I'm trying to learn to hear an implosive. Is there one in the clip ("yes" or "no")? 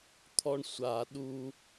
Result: yes